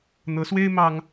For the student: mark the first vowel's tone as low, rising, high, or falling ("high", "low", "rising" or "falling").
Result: rising